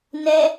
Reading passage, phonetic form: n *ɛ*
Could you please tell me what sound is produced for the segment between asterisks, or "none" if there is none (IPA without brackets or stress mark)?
ɛ